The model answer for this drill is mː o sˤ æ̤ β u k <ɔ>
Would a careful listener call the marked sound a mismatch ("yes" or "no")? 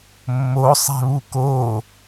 yes